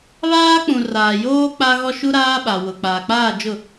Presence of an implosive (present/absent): present